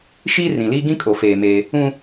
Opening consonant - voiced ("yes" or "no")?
no